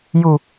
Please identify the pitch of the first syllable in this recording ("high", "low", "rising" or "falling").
low